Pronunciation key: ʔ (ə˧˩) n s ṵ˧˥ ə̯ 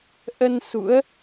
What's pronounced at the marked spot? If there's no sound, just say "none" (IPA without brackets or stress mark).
ə˧